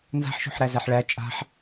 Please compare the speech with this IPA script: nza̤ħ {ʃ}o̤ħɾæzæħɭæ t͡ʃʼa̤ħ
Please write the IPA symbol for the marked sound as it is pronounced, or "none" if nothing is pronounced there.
ʃ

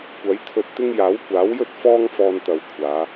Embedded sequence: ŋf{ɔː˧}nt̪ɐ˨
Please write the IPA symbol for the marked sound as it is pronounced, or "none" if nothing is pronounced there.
ɔː˧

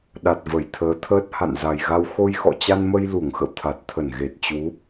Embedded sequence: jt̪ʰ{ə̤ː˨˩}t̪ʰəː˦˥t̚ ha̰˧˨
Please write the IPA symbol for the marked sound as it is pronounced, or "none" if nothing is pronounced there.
əː˨˦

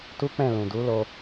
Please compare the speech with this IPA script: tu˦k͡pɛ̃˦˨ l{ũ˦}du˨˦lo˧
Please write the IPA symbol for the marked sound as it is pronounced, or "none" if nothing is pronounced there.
ũ˨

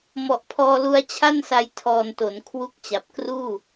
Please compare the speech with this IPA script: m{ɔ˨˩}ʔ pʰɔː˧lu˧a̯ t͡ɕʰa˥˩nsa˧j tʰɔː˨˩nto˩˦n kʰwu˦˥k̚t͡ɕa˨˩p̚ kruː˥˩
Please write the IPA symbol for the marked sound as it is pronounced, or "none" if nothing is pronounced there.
ɔ˨˩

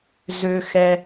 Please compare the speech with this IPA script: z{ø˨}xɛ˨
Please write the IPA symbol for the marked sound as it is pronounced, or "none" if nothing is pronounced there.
ø˨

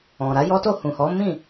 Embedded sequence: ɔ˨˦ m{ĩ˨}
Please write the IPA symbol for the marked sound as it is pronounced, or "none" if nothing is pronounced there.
ĩ˦˨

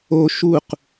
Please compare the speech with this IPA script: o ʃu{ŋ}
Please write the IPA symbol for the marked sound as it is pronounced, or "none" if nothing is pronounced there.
q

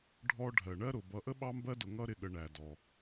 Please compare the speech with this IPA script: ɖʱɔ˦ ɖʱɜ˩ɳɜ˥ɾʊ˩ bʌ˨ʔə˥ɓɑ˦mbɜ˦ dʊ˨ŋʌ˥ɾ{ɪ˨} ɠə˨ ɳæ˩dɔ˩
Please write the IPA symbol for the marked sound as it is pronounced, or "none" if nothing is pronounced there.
ɪ˨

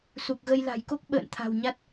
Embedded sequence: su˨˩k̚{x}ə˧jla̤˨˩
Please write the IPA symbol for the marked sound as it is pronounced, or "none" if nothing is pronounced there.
ɣ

